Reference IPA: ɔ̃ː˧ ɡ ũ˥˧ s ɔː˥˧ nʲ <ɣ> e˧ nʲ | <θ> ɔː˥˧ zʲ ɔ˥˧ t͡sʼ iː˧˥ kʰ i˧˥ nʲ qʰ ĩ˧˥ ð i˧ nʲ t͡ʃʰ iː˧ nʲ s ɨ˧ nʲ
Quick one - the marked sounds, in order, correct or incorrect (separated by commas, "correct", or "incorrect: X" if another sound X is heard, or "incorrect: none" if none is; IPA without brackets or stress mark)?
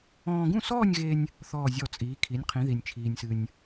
correct, correct